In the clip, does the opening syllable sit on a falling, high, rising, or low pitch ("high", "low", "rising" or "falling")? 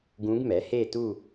rising